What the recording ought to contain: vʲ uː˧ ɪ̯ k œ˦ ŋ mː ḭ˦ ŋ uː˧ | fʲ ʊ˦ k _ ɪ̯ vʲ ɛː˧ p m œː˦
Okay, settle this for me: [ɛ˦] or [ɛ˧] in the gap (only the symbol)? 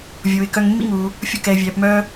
ɛ˧